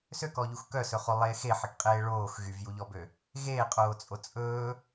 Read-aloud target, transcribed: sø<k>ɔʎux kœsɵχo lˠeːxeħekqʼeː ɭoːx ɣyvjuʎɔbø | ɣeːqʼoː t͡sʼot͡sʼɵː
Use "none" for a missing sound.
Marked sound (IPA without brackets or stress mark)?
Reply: k